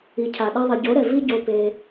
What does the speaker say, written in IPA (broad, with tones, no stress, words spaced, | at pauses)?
i˨cʰa˨ ɗɛ˧ðˤi˨ɟo˨˦ɾɛ˨ vi˦ɟo˧pe˧